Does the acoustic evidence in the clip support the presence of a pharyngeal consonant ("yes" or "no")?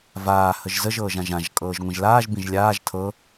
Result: no